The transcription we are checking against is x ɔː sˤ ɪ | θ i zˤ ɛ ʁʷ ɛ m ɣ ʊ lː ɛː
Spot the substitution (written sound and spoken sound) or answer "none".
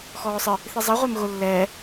none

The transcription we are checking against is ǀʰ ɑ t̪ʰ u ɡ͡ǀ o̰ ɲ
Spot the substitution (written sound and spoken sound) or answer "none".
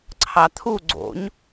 none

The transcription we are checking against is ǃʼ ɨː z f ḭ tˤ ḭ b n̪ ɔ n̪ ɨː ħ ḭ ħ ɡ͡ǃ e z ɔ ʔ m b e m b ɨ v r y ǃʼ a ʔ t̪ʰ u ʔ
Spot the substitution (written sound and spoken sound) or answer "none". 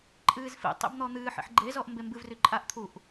none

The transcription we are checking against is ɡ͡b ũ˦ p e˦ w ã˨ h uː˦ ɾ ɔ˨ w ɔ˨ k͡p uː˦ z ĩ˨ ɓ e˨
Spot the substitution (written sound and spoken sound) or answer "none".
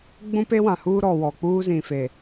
ɓ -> f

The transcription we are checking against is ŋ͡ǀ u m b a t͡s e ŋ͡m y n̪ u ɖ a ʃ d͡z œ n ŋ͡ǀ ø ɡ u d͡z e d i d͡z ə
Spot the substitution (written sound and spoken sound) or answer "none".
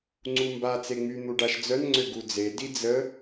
none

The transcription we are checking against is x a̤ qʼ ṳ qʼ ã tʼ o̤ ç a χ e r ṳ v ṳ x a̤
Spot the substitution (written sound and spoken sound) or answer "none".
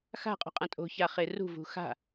none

